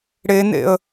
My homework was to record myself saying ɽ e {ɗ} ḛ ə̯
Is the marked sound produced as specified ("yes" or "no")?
no